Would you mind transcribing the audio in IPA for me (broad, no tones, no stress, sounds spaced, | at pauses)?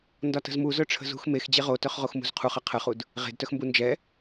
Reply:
n d ɒ t ə̤ z m u z œ ʈ͡ʂʰ ə̤ z ṳ x m e x d͡ʑ e ʁ o t œ χ ʁ o x m ṳ z qʰ u χ ə qʰ ə χ u d | ʁ e̤ d t œ x m b u n d͡ʒ ɛ